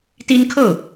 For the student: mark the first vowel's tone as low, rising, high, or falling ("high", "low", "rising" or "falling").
high